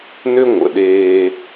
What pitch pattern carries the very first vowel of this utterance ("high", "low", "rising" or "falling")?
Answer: high